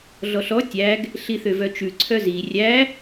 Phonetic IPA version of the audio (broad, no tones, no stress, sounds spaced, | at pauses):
ɮ ɔ ɬ ɔ tʲ æ ɡ | ɬ i θ ø v œ t͡ʃ ʉ ǀʰ œ z i rʲ æ